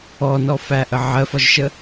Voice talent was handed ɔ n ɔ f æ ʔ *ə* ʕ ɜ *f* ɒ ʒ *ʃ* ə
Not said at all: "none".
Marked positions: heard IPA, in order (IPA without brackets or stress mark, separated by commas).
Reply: ə, f, ʃ